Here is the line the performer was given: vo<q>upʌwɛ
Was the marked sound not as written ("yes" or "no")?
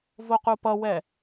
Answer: no